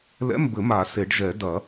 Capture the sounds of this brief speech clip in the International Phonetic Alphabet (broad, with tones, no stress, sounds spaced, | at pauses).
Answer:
l ɛ̰˧˥˧ m b ɘ˨˩˦ m a˨˩˦ s e˨˩˦ ɖ ʒ ɛ˨˩˦ d ɐ˨˩˦